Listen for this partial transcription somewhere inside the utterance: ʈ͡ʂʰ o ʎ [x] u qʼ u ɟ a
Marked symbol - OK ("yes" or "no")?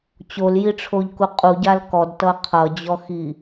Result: no